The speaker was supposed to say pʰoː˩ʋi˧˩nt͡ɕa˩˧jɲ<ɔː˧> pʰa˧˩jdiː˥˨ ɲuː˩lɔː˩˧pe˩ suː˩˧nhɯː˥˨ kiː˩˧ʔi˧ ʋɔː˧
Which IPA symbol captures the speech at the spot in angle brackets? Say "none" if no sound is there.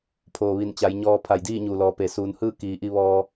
ɔː˧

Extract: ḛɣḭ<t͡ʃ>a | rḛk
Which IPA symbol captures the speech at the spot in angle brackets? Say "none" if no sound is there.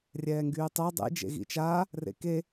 t͡ʃ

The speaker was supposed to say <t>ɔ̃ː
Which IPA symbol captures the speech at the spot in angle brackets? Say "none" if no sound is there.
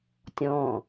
tʲ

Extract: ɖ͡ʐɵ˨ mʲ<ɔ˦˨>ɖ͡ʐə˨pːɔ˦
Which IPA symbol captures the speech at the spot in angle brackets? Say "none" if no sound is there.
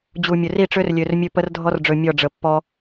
ɔ˦˨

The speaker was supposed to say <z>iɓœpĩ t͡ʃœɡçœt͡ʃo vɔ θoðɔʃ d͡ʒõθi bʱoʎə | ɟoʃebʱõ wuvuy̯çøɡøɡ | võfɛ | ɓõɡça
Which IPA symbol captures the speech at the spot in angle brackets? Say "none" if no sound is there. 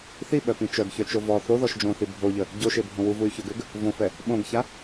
θ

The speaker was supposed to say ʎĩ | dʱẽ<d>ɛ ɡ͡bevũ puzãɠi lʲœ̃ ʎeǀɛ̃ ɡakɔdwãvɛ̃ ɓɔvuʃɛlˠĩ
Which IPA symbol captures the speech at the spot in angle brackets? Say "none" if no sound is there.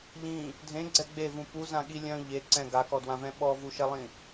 ɡ͡ǀ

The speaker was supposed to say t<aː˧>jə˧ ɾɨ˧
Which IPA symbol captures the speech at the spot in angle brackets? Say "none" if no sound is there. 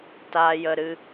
aː˧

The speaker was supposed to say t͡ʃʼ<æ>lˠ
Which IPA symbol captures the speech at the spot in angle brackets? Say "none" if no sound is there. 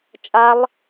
a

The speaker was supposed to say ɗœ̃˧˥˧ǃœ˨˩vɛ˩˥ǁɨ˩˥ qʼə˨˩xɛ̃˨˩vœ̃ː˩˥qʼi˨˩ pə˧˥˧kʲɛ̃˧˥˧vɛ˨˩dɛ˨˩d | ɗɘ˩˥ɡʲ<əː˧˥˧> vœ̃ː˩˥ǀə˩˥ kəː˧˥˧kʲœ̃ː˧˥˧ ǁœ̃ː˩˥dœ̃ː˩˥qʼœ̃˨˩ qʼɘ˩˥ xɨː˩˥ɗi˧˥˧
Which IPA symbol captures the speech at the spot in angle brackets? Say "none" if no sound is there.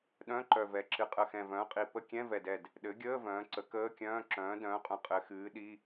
əː˧˥˧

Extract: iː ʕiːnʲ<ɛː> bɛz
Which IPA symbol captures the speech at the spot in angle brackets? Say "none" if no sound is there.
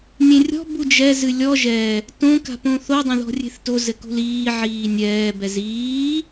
ɛː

